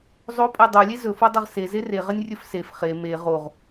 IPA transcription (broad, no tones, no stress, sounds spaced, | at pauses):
zˤ o pʼ ɛ dˤ o lʲ e z ɵ f o dˤ ɐ ʁ s e z e r e ʁ ɐ nʲ rʲ ɵ f s e f χ e m e ʁ o ʁ